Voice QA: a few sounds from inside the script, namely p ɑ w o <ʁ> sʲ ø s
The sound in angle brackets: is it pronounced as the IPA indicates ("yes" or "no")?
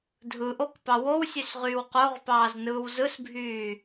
no